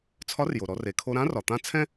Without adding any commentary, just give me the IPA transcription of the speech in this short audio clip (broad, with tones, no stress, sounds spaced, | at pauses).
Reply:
t͡sʰ ɒ˧˥ r j o˩ ɾ ɔ˩˧ r e˩ kʰ o˧ ɾ ã˧˥ r ɒ˩ t̪ ã˧˥ t͡sʰ ɛ̃˥